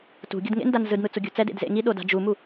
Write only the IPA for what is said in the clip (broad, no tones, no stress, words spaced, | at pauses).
tṳɡʲɤd ŋḛndan zɯdn̪ɯ t͡suɡʲṳt͡sɛd ḛdzḛŋi ɗoda̤d͡ʒumu